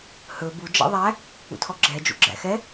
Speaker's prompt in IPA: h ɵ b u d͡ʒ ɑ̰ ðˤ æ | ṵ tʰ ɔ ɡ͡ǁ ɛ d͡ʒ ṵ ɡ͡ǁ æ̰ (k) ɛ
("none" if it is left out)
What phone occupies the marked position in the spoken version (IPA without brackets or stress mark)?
x